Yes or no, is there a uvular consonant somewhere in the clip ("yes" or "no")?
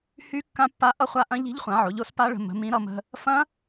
yes